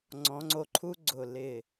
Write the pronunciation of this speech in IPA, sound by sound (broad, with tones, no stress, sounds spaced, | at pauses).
ŋ͡ǀ ɔ̃˩˧ ŋ͡ǀ o˧ ǃʰ u˥ ɡ͡ǀ ʊ˧˩ l ɪ˧˩